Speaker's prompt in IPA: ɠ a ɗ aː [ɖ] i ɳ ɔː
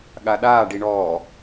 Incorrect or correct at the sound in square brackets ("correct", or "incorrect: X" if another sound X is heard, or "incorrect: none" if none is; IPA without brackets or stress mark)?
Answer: correct